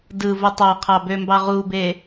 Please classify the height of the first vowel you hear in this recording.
high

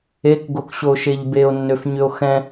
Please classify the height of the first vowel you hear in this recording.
mid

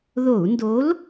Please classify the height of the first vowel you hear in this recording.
mid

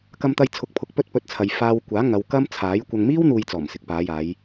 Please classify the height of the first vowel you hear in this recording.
low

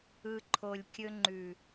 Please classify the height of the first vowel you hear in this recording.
high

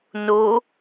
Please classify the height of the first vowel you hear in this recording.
mid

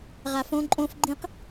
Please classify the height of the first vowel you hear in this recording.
low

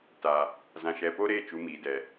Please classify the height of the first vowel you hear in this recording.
low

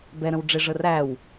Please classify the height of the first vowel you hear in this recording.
mid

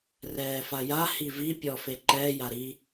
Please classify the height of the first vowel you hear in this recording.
mid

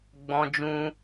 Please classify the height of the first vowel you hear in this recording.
mid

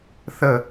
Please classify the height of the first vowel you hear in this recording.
mid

